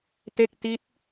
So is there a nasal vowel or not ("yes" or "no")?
no